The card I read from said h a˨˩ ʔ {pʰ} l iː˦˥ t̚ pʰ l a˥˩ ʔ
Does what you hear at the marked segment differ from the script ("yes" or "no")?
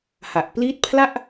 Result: yes